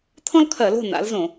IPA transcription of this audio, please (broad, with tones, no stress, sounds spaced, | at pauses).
t̪ʰ ɔ̃˥ l kʰ ɜ˧˩˧ l o̤˥˨ n a̰˨˥ l z õ˧˩˧